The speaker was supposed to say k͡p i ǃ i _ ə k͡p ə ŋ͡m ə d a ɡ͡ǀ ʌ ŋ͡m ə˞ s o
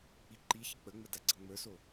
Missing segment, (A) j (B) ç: B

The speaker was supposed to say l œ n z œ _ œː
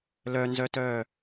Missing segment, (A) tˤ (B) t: B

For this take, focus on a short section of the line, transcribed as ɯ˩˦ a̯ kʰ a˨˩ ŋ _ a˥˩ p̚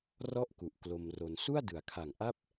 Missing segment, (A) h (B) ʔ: B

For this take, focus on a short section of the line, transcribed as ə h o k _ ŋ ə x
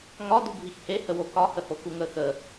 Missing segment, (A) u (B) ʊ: A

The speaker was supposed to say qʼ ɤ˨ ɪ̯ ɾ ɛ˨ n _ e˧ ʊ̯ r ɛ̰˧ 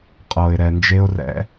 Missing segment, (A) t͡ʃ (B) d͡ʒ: B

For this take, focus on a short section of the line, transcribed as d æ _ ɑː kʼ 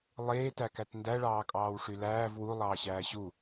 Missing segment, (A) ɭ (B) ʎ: A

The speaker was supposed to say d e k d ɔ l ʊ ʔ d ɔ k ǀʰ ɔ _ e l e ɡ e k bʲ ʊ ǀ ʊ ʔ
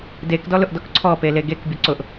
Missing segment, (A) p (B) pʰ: A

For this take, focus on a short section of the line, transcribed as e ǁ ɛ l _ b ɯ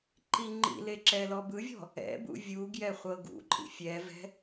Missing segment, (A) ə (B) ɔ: B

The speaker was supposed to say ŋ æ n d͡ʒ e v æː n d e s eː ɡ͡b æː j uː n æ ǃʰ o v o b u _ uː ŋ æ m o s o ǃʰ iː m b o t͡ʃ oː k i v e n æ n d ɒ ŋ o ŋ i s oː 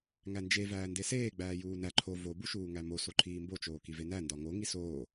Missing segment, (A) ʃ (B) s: A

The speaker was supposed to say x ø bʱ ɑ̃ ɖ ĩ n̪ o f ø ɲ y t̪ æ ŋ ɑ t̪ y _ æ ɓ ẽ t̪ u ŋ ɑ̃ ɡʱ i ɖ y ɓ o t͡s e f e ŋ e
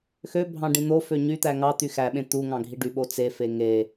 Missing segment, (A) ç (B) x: B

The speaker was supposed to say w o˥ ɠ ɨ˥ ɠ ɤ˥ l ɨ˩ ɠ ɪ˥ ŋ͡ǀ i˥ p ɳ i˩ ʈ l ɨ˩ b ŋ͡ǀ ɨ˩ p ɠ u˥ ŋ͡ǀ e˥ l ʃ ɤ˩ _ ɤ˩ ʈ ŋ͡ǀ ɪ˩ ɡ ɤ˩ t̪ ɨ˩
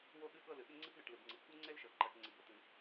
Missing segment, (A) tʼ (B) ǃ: B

